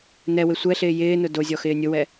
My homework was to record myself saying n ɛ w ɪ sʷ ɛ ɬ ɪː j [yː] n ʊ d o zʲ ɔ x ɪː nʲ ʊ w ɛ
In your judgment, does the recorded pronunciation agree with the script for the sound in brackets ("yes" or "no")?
no